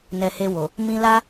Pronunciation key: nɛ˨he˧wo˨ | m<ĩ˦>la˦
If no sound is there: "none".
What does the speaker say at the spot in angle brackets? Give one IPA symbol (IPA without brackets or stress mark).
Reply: ĩ˧